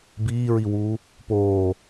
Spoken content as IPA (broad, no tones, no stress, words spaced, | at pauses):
biːɹiwuː | poː